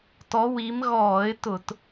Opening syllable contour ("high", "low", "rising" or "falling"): rising